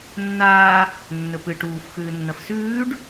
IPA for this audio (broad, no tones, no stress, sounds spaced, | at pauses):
nː aː | nː ɵ p ɨ ʈ uː f x ʉː nː ɐ f s ʉː ɖ